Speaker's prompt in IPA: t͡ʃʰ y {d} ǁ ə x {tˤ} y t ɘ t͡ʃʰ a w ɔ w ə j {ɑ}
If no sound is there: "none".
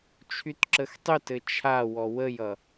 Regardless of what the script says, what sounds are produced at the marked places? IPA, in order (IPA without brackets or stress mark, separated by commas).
t, tˤ, ʌ